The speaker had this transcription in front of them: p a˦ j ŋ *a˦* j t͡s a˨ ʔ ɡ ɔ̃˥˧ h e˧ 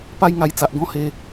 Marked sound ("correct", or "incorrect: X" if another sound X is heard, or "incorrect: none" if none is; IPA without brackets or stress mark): incorrect: a˧